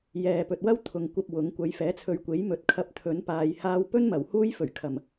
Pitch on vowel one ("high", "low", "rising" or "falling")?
low